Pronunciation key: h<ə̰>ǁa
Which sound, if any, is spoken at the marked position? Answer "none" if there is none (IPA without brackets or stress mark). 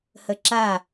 ə